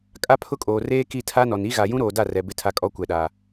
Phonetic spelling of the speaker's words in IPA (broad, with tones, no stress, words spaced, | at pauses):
kʼa˦pʰʊ˦kʼoː˨ reː˦ki˦˨tʰa˦nɔ˨n i˦ɣa˨ jũ˦ɾoː˨da˦˨rɛ˨ bɪ˦tʰa˦ kʼɔ˦kʷɛ˨ɗa˨